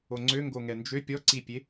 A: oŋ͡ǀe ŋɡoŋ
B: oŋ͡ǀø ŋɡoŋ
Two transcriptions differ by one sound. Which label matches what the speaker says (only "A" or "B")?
B